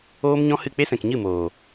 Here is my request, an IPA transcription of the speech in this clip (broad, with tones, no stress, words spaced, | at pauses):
oː˦mɲɔ̃˦hɨ˦˨ k͡pe˦sɛ̃˨kɲɨ˦˨moː˨